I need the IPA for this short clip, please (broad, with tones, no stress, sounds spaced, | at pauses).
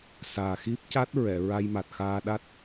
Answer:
s aː˨˩ x i˦˥ p̚ c a˦˥ t̚ ɹ ɛ˨˩˨ ɹ a˧ j m a˨˩ t̚ x aː˧ ɗ a˦˥ t̚